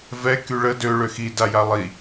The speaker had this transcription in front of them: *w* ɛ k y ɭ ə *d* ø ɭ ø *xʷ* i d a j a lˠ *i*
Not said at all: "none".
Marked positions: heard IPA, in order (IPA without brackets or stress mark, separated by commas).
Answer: v, d, x, i